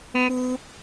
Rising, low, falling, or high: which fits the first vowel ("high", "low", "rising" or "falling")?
high